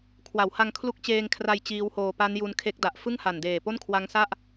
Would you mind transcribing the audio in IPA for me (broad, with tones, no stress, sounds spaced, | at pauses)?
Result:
kʰ w a˩˦ w h a˧ ŋ kʰ l u˦˥ k̚ t͡ɕ eː˧ ŋ kʰ r a˧ j t͡ɕ iː˦˥ w h oː˧ p a˦˥ n j u˧ n kʰ e˦˥ k̚ d a˨˩ ʔ f ɯ˥˩ ŋ h a˨˩ n d eː˨˩ p o˥˩ n kʰ w a˦˥ ŋ s a˥˩ ʔ